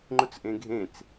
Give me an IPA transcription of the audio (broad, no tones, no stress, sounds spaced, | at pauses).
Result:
ŋ͡ǃ ʊ t͡s ʔ ẽ ɡʱ ẽ t͡s